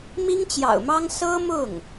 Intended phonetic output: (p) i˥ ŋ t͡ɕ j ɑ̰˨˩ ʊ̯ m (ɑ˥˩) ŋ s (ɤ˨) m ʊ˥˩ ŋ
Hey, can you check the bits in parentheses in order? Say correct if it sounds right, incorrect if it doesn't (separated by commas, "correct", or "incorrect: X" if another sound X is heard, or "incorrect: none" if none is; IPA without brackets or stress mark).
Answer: incorrect: m, incorrect: ɑ˥, incorrect: ɤ˥